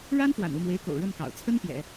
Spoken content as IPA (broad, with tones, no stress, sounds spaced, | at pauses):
ɻ a˥ n f w a̰˨˩ n u˥˩ m w e˧˥ ɪ̯ k o̰˨˩ ʊ̯ ɻ ə˥˩ n k ɑ̰˨˩ ʊ̯ t͡sʰ ə˥ n p j ɛ̰˨˩˦